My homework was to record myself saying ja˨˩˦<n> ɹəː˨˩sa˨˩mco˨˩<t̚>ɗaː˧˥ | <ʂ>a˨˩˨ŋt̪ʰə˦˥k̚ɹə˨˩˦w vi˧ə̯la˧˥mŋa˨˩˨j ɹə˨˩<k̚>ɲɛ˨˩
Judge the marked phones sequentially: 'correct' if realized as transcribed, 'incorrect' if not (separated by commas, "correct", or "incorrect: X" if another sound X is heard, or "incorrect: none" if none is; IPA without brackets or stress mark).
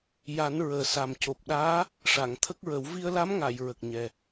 correct, incorrect: p̚, correct, correct